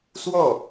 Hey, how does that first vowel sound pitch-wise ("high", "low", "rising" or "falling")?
falling